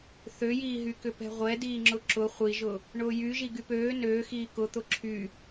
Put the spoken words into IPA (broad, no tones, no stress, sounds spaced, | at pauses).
θ ø j iː ɦ y k ʏ p ɛ̤ ʁʷ ɛ d iː ŋ͡ǁ ʊ ǁ ʊ χʷ i ʒ ʊ | ɳ ʊː j y ʒ i ɡ y p øː n øː x iː k ʊ t̪ ʊ ǁʰ y